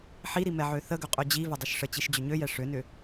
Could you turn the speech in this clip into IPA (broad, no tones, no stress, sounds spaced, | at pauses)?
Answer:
ħ i ɾ i m ɛ ʕ ø θ ə ɡ ʏ qʼ ø d͡ʑ i v ʏ dˤ ɵ ʃ ʂ ə t͡ɕ i ʃ d͡ʑ ʏ ɲ ø j ɛ ʂ ø n ʏ